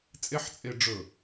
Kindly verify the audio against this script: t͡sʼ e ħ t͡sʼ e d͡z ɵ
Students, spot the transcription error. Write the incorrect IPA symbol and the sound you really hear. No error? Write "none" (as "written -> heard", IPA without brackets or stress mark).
d͡z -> ɖ͡ʐ